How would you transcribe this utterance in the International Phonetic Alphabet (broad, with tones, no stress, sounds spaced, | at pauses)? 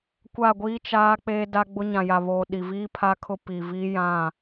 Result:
kʷ a˦˨ ɡʷ iː˦ t͡ʃ aː˦ k͡p e˦ d a˦ ɡ͡b ʊ˦ ɲ ã˨ j a˨ β oː˨ ɗ i˨ v iː˦ pʰ a˦ kʰ ʊ˦ p i˨ v i˦ j ã˦˨